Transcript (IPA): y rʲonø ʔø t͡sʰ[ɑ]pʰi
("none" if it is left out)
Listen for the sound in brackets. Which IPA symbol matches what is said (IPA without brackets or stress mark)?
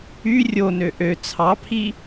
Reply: ɑ